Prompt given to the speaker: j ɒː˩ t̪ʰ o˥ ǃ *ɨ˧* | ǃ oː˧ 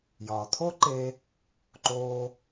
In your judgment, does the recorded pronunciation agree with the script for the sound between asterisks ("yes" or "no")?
no